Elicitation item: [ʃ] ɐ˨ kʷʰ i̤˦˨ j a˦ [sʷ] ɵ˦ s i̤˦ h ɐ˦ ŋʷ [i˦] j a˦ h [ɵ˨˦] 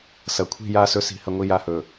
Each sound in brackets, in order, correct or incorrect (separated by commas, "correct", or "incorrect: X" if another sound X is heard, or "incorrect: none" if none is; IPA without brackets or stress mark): incorrect: s, incorrect: s, correct, incorrect: ɵ˨